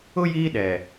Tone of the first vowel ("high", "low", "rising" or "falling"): high